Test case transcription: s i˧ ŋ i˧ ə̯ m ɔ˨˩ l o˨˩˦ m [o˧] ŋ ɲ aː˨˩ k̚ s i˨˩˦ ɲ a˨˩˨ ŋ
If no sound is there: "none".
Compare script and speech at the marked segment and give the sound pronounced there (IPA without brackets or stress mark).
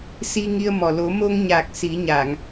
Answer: o˧